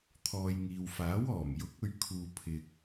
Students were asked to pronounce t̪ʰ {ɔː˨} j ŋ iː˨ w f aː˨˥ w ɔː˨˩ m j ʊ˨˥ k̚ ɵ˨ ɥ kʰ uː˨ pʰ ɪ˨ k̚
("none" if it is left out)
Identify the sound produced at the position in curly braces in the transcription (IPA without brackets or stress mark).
ɔː˨